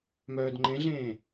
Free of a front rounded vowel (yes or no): no